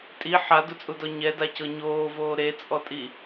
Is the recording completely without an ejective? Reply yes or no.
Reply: no